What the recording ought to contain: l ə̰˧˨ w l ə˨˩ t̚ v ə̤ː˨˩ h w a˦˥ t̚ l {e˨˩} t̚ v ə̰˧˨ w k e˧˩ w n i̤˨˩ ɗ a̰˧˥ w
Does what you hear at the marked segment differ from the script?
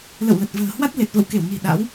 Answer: no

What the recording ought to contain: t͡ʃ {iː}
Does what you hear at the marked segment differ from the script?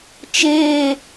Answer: yes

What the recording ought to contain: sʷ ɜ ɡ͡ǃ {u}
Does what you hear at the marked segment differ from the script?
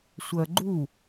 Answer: no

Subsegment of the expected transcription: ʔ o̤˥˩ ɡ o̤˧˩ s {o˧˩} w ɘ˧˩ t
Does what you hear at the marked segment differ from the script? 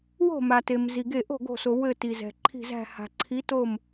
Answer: yes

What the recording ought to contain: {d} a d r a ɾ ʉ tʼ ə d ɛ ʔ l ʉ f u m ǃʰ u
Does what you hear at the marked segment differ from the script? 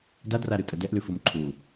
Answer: no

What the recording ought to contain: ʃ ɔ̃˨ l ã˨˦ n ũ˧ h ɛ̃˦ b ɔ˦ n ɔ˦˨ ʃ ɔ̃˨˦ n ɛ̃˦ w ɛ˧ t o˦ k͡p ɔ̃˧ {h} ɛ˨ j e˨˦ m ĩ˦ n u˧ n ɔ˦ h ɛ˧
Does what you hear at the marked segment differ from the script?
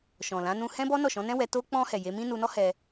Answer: no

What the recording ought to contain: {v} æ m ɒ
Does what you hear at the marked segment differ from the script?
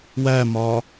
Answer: yes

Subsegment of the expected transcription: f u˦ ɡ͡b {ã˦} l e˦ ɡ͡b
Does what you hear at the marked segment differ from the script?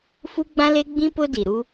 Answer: no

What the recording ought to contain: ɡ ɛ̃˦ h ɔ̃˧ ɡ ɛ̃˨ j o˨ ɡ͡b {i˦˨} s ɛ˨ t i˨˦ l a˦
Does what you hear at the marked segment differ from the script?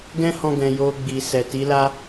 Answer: yes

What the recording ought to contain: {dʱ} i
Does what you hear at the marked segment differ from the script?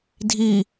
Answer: no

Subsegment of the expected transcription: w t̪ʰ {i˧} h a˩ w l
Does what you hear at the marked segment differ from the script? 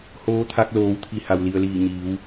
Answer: yes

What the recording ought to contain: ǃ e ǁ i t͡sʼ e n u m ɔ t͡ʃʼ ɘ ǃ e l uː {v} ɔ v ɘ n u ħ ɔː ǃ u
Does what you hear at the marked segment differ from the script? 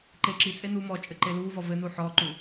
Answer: no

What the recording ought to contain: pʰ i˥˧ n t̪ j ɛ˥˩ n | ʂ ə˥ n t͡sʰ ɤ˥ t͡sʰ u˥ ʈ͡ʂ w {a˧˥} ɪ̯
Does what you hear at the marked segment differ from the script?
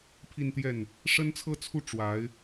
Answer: no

